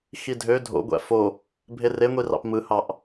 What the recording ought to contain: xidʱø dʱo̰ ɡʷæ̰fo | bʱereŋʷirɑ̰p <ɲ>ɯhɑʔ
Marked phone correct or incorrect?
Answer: incorrect